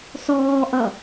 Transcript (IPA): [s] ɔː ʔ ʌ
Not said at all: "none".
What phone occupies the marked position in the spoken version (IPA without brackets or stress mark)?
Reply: s